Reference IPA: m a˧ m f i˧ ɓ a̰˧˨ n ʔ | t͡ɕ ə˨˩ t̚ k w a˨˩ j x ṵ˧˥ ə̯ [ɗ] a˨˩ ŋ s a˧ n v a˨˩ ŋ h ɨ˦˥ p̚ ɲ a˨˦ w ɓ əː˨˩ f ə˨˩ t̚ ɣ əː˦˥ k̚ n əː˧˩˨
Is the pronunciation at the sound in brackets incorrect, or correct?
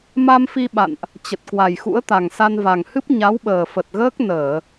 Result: incorrect